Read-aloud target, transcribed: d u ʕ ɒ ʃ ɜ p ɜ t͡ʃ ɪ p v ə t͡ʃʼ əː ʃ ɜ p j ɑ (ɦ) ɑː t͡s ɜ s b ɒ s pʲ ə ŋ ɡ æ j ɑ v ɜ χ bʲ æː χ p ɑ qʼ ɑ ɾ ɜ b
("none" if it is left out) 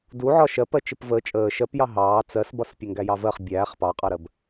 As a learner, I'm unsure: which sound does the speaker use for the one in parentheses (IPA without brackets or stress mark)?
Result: ɦ